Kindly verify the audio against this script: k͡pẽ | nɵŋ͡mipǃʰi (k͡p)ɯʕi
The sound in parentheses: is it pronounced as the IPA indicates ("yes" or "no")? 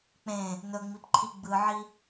no